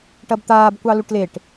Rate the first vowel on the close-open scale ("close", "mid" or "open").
open